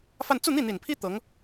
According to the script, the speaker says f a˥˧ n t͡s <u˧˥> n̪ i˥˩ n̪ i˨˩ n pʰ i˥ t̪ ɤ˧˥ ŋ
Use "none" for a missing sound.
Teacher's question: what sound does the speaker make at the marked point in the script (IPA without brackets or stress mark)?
u˥˧